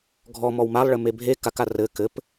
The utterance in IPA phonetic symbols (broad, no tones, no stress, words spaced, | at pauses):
ɡʱɔmɔw malˠɭɘme bʱe kaka rɘ kɘp